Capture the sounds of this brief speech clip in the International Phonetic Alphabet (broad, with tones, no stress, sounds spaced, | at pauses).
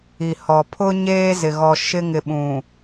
i˨ h ɔ˨ pʰ ʊ˦ ɲ eː˦ z ɪ˨ ɣ ɔ˨ ʃ ɪ˦ ŋ ɪ˨ ɓ ũ˨